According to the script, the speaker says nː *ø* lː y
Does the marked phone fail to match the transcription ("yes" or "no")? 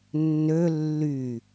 no